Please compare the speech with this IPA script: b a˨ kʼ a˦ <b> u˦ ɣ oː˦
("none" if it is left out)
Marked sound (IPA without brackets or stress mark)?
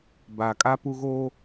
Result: p